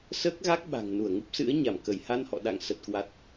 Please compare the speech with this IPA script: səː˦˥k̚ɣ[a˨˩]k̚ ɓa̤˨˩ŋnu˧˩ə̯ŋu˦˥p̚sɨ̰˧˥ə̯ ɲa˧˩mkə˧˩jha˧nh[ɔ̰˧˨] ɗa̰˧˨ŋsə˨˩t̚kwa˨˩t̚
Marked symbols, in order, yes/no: no, yes

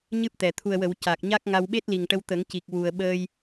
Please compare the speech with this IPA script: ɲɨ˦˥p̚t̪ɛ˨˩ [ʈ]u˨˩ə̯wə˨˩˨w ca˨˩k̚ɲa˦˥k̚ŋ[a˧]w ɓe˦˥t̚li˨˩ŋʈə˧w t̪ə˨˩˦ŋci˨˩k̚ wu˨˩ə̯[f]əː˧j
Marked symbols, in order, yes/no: no, yes, no

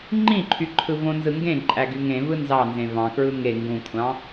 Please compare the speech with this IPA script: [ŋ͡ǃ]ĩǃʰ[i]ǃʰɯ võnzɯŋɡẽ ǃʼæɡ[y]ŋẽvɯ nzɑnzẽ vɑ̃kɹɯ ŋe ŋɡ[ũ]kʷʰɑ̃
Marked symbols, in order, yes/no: yes, no, yes, yes

